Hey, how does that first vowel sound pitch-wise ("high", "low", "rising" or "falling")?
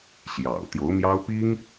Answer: low